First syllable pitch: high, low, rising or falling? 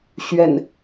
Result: low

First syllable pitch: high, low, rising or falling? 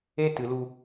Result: high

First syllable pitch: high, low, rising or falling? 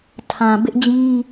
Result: low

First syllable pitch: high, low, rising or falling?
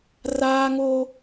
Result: high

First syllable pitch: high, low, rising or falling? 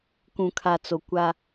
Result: low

